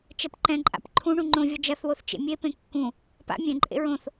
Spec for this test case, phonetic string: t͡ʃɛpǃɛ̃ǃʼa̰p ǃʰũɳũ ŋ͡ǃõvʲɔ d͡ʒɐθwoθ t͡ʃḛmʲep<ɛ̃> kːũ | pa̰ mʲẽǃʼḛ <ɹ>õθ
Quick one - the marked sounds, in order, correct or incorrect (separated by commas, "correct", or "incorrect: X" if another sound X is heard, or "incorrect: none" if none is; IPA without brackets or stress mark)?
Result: incorrect: ẽ, correct